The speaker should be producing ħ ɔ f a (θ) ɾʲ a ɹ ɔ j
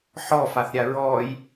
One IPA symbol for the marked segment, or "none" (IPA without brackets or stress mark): θ